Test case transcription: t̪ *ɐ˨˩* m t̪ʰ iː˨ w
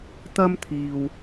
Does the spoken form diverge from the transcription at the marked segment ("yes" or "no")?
yes